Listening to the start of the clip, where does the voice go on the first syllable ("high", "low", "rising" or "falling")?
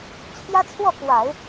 high